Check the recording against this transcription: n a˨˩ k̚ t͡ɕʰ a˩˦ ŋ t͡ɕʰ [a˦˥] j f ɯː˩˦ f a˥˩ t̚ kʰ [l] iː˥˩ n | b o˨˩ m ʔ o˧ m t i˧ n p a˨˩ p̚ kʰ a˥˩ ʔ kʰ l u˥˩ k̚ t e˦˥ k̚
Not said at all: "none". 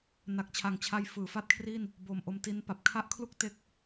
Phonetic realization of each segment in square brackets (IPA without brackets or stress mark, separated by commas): a˦˥, r